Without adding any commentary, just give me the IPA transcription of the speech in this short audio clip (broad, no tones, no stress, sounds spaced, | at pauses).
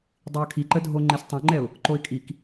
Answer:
dˤ i ə̯ kʰ i ǃ ə dʱ o ŋ͡ǃ e s tˤ õ ŋ͡ǃ ɛ ʊ̯ | ǃ o ɪ̯ kʼ i k